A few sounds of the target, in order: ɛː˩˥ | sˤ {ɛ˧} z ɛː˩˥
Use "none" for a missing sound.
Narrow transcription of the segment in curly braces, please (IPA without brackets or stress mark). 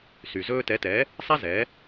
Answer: ɛ˥